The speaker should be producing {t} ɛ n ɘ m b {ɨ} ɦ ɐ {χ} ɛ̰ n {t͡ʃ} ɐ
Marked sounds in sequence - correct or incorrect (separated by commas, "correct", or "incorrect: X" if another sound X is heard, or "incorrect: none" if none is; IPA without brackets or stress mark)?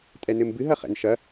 incorrect: tʼ, correct, correct, incorrect: ʃ